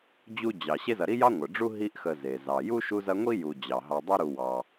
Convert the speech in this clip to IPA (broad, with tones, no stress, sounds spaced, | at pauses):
d͡ʑ u˥ d͡ʑ ɑ˨ ɕ e˦ z ɐ˨ ɾ i˥ j ɑ˥ ŋʷ ə˩ ɖ͡ʐ u˥ ɦ i˦ ʔ x ə˨ z e˩ z ɑ˩ j u˥ ʃ u˦ z ɐ˦ ŋʷ i˥ j u˩ d͡ʑ ɑ˩ ɦ ɑ˨ dˤ ɐ˦ ɾ u˨ w ɑ˩